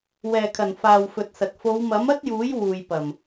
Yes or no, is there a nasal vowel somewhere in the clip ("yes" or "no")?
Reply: no